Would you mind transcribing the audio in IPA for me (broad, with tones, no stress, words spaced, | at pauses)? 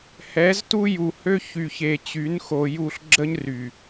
hɛ˨˦ztu˦ju˨ hø˦çy˨çe˨ t͡ɕy˨˦nxo˨ju˦˨ɬ ɡ͡ǁə˦ɲry˨